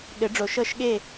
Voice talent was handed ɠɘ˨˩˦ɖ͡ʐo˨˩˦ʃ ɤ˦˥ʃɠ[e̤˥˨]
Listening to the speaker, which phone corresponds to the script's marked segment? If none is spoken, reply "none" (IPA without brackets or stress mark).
e˥˨